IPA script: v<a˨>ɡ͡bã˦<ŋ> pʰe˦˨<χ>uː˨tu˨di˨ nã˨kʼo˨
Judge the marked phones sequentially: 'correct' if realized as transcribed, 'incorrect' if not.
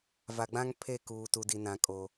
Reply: correct, correct, incorrect: k

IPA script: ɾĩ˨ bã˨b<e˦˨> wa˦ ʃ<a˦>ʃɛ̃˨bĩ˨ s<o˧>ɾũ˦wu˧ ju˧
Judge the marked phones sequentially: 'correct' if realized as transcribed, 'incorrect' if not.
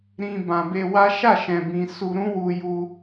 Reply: incorrect: e˧, incorrect: a˦˨, incorrect: u˧

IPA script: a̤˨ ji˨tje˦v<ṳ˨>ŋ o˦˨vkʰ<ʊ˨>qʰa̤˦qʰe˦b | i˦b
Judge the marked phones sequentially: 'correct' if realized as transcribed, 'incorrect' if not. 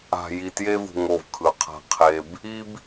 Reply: correct, incorrect: ɯ˨

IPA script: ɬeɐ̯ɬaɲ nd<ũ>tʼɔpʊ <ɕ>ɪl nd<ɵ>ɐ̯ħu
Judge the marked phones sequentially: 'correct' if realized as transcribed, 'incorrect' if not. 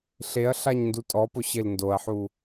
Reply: incorrect: u, correct, incorrect: o

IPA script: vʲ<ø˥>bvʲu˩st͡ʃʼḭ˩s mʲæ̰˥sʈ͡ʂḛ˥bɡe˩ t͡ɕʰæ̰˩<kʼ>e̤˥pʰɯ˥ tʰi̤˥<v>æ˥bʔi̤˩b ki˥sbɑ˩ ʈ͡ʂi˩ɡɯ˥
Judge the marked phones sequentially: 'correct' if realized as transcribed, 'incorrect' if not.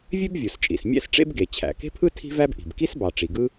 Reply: correct, incorrect: k, correct

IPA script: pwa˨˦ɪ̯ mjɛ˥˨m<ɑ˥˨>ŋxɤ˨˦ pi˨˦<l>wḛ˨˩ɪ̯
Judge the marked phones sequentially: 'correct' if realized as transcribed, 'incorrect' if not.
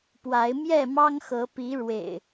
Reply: incorrect: ɑ˦, incorrect: ɻ

